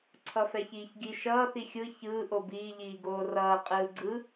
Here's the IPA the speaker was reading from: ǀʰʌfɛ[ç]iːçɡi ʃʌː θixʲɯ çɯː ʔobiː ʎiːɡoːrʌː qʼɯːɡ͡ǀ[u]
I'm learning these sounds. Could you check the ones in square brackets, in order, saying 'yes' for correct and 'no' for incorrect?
yes, no

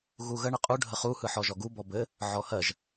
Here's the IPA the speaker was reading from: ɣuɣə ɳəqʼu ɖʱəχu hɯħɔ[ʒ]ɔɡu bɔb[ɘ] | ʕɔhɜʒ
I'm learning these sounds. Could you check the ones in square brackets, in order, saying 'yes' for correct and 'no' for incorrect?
yes, yes

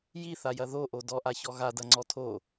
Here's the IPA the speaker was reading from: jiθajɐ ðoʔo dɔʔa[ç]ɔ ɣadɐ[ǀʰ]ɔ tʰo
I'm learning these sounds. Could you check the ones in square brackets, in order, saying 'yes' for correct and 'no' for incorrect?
yes, no

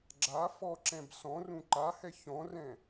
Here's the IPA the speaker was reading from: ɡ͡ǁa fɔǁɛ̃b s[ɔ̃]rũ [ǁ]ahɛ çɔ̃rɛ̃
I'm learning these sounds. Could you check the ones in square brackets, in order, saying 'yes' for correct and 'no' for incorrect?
yes, no

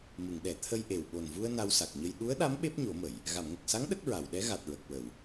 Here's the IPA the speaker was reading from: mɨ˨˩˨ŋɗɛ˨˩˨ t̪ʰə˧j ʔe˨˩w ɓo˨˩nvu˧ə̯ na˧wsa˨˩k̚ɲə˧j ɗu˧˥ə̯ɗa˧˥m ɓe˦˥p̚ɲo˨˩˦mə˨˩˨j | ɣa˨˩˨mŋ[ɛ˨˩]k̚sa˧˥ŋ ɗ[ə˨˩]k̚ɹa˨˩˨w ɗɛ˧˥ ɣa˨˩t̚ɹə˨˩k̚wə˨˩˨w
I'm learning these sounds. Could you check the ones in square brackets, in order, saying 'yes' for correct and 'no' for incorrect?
no, no

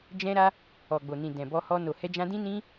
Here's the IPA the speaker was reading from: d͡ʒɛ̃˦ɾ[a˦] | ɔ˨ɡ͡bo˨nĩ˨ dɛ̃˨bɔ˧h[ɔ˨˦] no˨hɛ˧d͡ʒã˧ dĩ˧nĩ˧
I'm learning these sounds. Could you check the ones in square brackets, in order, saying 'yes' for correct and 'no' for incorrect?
yes, no

